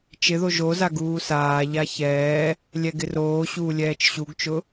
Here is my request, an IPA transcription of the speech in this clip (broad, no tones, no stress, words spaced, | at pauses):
t͡ʃɪðo ʒoza ɡuːsaːʎa çɛː | lʲɛɡɪroːɕuː lʲɛːt͡ʃɕuɡt͡ʃʊ